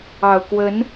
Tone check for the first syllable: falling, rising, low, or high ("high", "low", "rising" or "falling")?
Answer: low